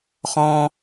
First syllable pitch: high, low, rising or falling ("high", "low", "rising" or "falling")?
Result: high